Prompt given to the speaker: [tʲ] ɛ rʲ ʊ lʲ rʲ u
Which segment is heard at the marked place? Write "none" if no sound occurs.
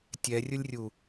tʲ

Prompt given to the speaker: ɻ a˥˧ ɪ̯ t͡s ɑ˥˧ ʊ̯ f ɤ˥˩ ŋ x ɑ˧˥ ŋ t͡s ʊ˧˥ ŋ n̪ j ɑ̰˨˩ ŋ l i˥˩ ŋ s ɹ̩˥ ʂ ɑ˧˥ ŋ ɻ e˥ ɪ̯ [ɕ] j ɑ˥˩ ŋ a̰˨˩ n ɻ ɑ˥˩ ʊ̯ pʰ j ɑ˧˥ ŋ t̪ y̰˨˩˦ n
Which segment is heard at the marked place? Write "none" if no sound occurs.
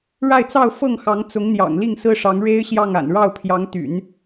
ɕ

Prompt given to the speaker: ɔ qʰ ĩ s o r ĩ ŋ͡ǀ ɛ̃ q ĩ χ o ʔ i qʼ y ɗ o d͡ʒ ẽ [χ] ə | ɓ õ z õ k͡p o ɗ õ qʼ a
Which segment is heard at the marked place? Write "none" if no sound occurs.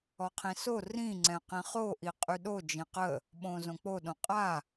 q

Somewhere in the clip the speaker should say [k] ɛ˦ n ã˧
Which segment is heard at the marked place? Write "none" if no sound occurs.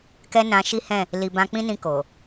k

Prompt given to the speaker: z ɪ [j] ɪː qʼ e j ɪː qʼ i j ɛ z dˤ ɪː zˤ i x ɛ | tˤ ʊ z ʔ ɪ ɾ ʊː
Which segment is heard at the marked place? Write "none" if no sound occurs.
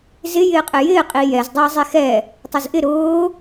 j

